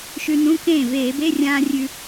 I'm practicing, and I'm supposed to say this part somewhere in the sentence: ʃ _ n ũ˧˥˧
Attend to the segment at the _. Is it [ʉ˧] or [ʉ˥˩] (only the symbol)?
ʉ˧